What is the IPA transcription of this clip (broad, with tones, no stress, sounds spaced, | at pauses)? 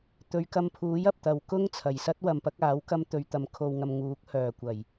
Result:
t̪ ɵ˨˧ ɥ k ɐ˧ m pʰ uː˨˥ j ɐ˨ p̚ t̪ ɐ˨ w k ʊ˥ ŋ t͡sʰ ɐ˨˩ j s ɐ˥ t̚ w ɐ˨ m p ɐ˨˥ k̚ aː˨˥ w k ɐ˧ m t̪ ɵ˨ ɥ t̪ ɐ˨ m kʰ o˨ w ŋ ɐ˨ m ŋ uː˨˥ k̚ h œː˨˩ kʷ ɐ˨˩ j